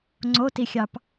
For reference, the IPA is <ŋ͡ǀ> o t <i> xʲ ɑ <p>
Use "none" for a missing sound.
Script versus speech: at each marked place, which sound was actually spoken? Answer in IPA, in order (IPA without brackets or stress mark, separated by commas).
ŋ͡ǀ, i, p